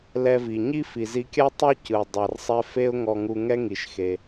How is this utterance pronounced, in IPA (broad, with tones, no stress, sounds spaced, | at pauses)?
l ɛ˧ v i˩ ɲ i˥ f i˩ z i˧ kʲ a˥ tˤ o˥ c ɯ˩ dˤ a˩ r sˤ ɛ˧ f e˥ ʊ̯ ŋ ɔ˧ ŋ u˧ ŋ ɛ˥ ŋ i˩ ʃ x e˩